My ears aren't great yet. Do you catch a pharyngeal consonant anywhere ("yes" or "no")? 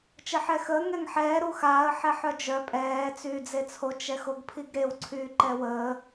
yes